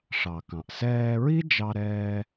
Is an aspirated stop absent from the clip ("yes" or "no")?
yes